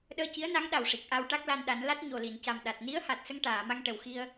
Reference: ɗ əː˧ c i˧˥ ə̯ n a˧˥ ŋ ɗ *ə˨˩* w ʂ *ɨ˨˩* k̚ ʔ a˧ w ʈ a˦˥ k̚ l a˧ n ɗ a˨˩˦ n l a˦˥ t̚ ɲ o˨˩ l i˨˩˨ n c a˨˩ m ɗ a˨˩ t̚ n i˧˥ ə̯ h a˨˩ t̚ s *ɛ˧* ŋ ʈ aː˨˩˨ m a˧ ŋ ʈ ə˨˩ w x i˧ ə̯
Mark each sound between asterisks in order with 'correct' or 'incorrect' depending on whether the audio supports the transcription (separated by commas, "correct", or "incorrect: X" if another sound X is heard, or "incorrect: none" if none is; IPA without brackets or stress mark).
incorrect: a˨˩, incorrect: i˨˩, incorrect: ə˧